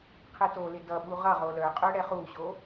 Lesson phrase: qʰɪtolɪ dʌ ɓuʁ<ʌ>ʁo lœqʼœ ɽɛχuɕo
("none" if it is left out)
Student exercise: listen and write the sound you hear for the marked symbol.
ʌ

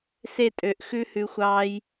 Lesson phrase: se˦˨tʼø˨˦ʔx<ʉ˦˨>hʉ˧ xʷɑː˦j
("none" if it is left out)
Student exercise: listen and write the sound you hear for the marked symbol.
ʉ˦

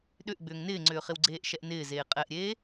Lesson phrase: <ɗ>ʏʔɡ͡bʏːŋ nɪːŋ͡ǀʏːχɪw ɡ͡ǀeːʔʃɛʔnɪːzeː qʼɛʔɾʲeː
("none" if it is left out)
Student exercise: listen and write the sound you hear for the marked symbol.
ɗ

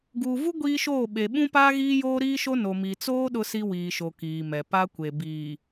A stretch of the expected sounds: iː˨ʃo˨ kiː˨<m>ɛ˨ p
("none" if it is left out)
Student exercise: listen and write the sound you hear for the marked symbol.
m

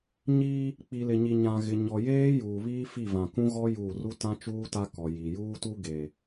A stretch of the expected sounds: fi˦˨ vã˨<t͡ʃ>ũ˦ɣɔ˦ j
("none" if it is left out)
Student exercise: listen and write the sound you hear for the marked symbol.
k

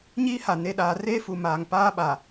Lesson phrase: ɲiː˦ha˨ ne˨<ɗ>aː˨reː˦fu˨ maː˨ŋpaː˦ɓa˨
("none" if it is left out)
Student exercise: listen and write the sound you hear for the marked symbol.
ɗ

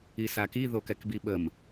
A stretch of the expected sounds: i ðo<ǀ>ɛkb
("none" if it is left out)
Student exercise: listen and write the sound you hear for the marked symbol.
k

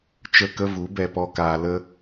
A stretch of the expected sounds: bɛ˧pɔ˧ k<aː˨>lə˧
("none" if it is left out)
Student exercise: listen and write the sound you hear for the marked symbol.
aː˨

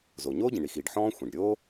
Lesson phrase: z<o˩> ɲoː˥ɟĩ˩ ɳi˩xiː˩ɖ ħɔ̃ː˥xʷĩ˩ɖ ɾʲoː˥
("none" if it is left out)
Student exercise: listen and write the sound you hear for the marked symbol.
o˩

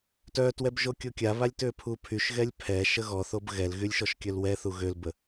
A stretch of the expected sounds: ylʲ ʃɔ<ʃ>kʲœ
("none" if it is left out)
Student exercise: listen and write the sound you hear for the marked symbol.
ʃ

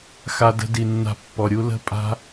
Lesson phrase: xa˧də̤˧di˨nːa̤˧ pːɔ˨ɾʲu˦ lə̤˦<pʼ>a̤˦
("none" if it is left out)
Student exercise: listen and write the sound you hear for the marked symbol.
pʼ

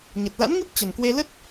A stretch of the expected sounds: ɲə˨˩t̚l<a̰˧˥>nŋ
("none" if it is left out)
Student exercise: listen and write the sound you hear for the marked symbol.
a̰˧˥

